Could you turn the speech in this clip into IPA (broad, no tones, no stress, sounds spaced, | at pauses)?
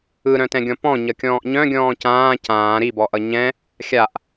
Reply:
ɯ ɾ œ̃ t ɛ̃ ɡʲ ɔ̃ p ɔ̃ ɲ ʌ kʲ ɔ̃ː ʔ ɲ œ̃ ɡʲ ɔ̃ː c ãː c ãː ɾ i b ɔ ʔ ʌ ɲ ɛ̃ | xʲ a ʔ